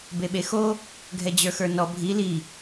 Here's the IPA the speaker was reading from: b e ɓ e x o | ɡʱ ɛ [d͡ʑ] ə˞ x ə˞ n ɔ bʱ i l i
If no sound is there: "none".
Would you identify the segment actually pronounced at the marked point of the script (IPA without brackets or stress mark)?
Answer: d͡ʑ